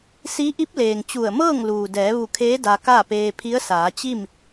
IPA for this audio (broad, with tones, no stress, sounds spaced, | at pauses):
s i˧˥ ʔ i˧˥ p̚ l eː˩ ŋ t͡ɕ u˧˩ ə̯ m ɤː˥˨ ŋ l uː˩ d ɛː˩˧ ʋ u˧˩ kʰ eː˧˥ d a˧ k a˥˨ p eː˧ pʰ i˧˥ ə̯ s aː˩˧ t͡ɕ i˥˨ m